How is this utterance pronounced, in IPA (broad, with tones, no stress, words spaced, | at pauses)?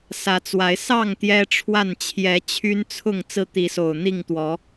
sä˨˦t͡swa˨˦ɪ̯ sɑ˥˨ŋ t̪jɛ˦ʈ͡ʂʰwa˥˨n t͡ɕʰjɛ˨˦t͡ɕʰy˦nt͡sʰʊ˥˨ŋ t͡sɹ̩˦t̪i˨˦so˨˩ʊ̯ n̪i˥˨ŋt̪wɔ˨˦